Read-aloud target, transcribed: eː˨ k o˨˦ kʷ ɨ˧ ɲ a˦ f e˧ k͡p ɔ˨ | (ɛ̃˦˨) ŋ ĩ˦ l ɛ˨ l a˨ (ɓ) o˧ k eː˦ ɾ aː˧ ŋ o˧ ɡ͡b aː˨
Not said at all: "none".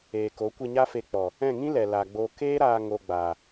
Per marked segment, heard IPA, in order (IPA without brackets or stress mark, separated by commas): ɛ̃˦˨, ɡ͡b